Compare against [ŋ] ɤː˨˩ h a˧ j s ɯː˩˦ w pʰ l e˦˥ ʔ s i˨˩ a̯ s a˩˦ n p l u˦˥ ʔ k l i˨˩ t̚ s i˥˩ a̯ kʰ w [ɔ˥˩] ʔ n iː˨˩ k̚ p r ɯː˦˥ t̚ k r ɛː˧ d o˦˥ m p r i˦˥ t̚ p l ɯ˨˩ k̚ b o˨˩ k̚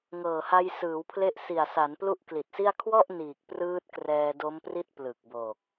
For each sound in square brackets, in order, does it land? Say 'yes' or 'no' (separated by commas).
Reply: yes, yes